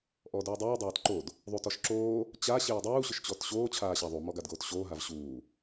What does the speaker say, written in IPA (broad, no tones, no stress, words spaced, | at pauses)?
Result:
ʔɔduːdˤuː dˤaːtǃod | ðˤutɔʃǁoː | t͡ɕa ɕeːdˤuː ɕʊʃt͡ɕɔtɕoː t͡ɕʰaːɕaðˤu mɔɡadɡoːtɕoː ɦavɕuː